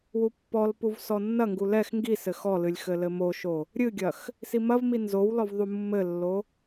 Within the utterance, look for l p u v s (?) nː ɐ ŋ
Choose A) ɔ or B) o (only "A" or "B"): A